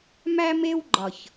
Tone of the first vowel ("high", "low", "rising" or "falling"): high